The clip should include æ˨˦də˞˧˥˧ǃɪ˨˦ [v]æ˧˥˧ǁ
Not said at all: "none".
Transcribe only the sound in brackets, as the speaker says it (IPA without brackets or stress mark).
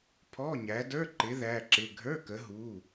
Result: ð